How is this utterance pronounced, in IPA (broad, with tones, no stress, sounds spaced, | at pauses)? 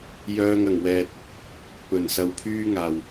j œː˧ ŋ ɐ˨˩ ŋ w ɛː˨ t̚ | p ɵ˨˩ n s ɐ˨˧ w pʰ yː˥ ŋ aː˨˩ w